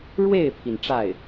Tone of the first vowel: falling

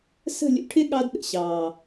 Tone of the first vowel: falling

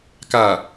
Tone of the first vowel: low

